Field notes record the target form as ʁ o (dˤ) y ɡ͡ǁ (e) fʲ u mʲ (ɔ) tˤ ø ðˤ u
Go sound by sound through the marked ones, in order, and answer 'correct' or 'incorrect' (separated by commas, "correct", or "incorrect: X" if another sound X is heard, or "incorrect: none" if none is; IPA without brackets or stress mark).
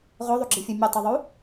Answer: incorrect: ðˤ, incorrect: i, incorrect: ə